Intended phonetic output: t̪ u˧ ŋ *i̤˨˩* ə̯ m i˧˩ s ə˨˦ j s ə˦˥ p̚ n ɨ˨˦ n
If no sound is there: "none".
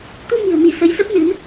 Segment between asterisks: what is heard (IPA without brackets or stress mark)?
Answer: i̤˨˩